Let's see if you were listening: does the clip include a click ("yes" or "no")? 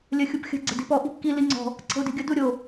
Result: yes